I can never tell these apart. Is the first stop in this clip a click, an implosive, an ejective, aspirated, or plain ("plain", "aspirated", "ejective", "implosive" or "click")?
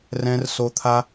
aspirated